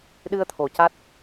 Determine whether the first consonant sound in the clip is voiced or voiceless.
voiced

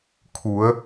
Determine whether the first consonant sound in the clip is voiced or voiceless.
voiceless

